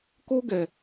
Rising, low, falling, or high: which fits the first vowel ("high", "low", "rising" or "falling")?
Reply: high